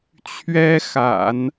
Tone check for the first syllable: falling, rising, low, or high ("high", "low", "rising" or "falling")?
high